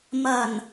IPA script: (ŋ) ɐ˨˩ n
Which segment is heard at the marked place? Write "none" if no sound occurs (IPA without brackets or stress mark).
m